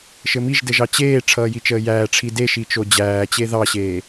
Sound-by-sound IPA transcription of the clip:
ʃ ɘ m i ʒ d ɘ ʒ ɑ t͡ɕ eː ʈ͡ʂʰ ʌː j i t͡ʃ əː j æː ʈ͡ʂʰ i d e ʃ i t͡ʃ o d͡ʑ æː t͡ɕ e ð ɑ ɕ eː

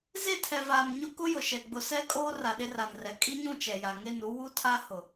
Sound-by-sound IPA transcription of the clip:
z e˦˨ tʰ ɛ˨ v aː˨ m ɲ ʊ˦ k ʊ˦ j ʊ˨ ʃ ɛ˨ ɡ͡b ʊ˨ s ɛ˦ kʼ oː˦ r a˨ ɗ ɪ˦ r a˨ n r ɛ˨ kʼ i˦ ɲ ũ˦˨ t͡ʃ ɛ˨ j a˨ ŋ e˦˨ n u˦ w u˦ tʰ a˦ h ʊ˨

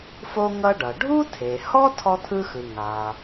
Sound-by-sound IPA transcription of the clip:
f o˥ ŋ ʌ˥ ɖ ʌ˩ ɖʱ u˥ tʰ e˩ h ɔ˥ tʰ ɔ˥ t̪ʰ ɯ˥ x ɯ˩ ŋ a˩

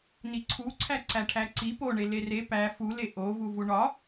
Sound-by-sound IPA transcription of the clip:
n i ǀʰ u ǀʰ æ ǀ æ ʈʰ æ ǀ i p o ɳ e l e r e p æ f u l e ʔ o v u v u ɳ ɒ

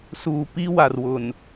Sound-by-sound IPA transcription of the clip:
s uː˨ p i˦ w a˨ r w ʊ˨ n

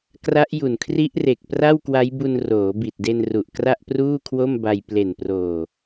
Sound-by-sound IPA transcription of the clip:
k r a˦˥ ʔ j u˨˩ n kʰ r i˦˥ ʔ r e˨˩ k̚ p r a˥˩ w k w a˦˥ j b u˧ n r oː˩˦ b i˨˩ t̚ d e˧ n r u˨˩ ʔ k r a˥˩ ʔ p r uː˥˩ kʰ w o˥˩ m b a˧ j p l e˨˩ n p r oː˨˩

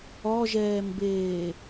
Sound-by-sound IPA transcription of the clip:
ɔ ʒ ɛː m b eː

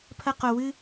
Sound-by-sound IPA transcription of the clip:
pʰ ɐ˦ q o˧ w ɨ˦

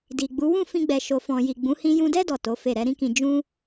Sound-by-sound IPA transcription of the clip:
d i˨ ɡ͡b u˨˦ w ũ˦˨ f ĩ˧ ɡ͡b ɛ˨ ʃ o˨ f ɔ̃˨ j i˨ ɡ͡b ũ˨˦ h ĩ˧ j ũ˧ d ɛ˦ d ɔ˦˨ t o˨˦ f e˦˨ ɾ ɛ˧ ɾ ĩ˦ k ĩ˧ d͡ʒ ũ˦

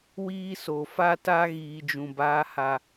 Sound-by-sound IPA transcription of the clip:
w iː˦ s o˨ f a˦ t a˦ ɣ iː˨ d͡ʒ ũ˨ b aː˦ h a˦

